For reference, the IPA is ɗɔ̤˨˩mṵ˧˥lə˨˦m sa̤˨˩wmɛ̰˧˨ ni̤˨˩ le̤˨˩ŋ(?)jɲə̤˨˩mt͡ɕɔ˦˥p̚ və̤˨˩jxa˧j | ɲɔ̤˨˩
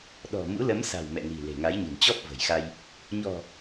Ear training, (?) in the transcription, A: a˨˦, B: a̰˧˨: A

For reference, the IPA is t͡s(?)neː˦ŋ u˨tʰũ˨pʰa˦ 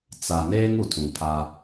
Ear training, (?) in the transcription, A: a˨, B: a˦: A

